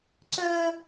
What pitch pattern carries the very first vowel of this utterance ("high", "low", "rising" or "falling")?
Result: high